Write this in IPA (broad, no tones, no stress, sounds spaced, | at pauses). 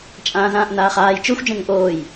t͡ʃʼ ãː z ãː ʔ n aː χ aː j t͡ʃ ø xʷ d͡ʒ ẽ ŋ ə̃ ʔ oː j